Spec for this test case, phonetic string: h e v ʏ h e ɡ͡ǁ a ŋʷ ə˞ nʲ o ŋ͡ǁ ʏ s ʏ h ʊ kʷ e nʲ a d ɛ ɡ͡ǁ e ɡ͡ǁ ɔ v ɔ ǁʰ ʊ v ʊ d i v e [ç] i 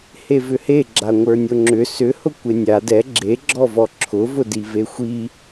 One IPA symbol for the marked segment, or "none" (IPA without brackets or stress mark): xʷ